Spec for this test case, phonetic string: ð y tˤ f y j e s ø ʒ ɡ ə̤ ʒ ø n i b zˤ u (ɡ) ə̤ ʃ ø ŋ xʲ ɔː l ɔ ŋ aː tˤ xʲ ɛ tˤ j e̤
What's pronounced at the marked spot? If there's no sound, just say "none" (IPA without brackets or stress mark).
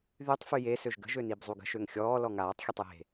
ɡ